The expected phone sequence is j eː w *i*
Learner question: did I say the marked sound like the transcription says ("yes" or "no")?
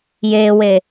no